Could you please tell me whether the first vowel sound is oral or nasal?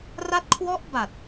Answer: oral